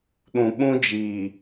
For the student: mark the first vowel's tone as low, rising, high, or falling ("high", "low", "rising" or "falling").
low